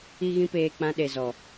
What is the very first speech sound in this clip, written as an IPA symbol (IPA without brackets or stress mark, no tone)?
i